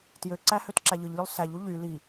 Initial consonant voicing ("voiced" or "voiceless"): voiceless